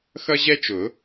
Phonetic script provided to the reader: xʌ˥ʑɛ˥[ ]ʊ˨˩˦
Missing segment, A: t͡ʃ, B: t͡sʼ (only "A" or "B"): A